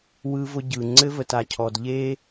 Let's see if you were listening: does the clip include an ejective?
no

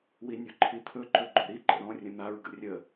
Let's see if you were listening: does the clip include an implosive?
no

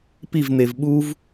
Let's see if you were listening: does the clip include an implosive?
yes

